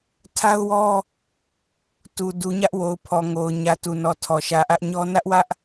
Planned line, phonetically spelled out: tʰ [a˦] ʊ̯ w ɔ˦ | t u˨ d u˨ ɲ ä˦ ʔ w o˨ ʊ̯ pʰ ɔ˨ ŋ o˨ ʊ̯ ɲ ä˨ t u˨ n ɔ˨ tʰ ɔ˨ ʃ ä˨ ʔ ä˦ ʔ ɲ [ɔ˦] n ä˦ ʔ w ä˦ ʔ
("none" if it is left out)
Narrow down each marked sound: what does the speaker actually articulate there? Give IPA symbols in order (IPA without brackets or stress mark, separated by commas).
a˦, ɔ˦